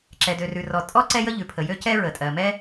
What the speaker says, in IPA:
ǁ ɛ˩ d ø˩ r ʉ˩ r ɔ˩ tʼ ɔ˥ ǀ ɛ˥ j ə˥ ʎ ʉ˩ pʰ ə˩ j ø˥ c ɛ˥ ɹ ə˩ tʼ ɜ˩ m ɛ˥

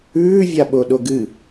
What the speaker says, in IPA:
ʉː vʲ a ɓ o ɗ o ɡ ɨ

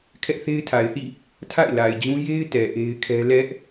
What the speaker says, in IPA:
kʰ ɛ˦ ʔ θ e˦ ɪ̯ tʰ a˨ ɪ̯ θ ḭ˦˨ | tʰ a̰˦˨ ɪ̯ l a˨ ɪ̯ d͡ʑ ũ˦ j e˦ ɪ̯ t ɛ˨ ʔ e˦ ɪ̯ kʰ ɛ˦ l ɛ˦ ʔ

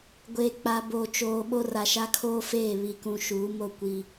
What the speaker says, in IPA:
ɡʷ eː˨ k͡p a˨ b oː˨ t͡ʃ oː˨ ɓ o˦ r a˨ ʃ a˦ kʰ oː˦ f eː˦˨ β i˨ k ũ˨ ʃ uː˨˦ m o˦˨ kʷ i˨

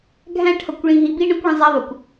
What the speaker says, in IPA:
ɡʱ æ̃˦ ʈʰ ʌ˨ kʷ ɭ ĩ˦ ɦ i˦ b i˦ ɳ ə̃˦ kʷ ɭ ə̃˦ zˤ æ˦ ðˤ ʊ˨ kʷ

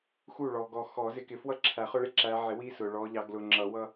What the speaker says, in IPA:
x u˥˩ ɭ ɔ˨ ɡ ɔ˨ x ɔ˨˩˦ z ɪ˨˦ k ɪ˨ f w ʌ˥˩ ǁʰ æ˨˩˦ χ ʊ˦ ɭ ɪ˥˩ ǁ æ˨˦ ʕ ɪ˨˩˦ w i˦ s ʊ˨ ɭ ɔ˨˦ ʎ ɑ˨˦ ɡ l ʊ˨ ŋ͡ǁ ʌ˨˩˦ w ʌ˦

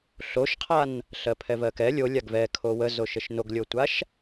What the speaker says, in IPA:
ɬ o ʃ qʰ a n | ɬ ɜ pʰ ɛ v ɜ k ɛ lʲ o lʲ a ɡ v ɛ kʰ o w ə z o ʃ ə ʃ n o ɡ lʲ o tʷ a ʃ

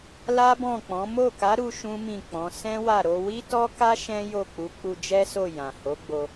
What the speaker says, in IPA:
l a˦ b ɔ̃˦˨ k͡p ɔ̃˨˦ m o˦˨ k a˨˦ ɾ u˦ ʃ ũ˦ m ĩ˦˨ k͡p ɔ̃˨˦ s ɛ̃˦ w a˦˨ ɾ o˧ w i˦ t ɔ˦ k a˦ ʃ ɛ̃˦ j o˦˨ k͡p u˨˦ k͡p u˧ d͡ʒ ɛ˦ s o˦˨ j ã˨ h o˨˦ ɡ͡b o˧

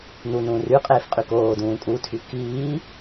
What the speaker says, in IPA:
n u n ũː r y qʼ eː f qʼ y k oː d ũː kʼ u tʰ y k iː

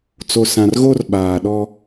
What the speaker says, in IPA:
t͡s o˨ s ã˨ r ɣ o˦ r ɓ aː˨ ɗ ɔ˦

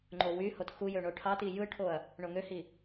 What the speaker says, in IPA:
ŋ͡ǃ o w y h o t x u j ø ɳ o ʈʰ ɑ t i j ɯ ʈʰ o ɐ̯ | ɳ o ŋ ø h i

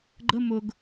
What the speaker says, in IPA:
ɡ͡ǃ ə m ʊ ɡ

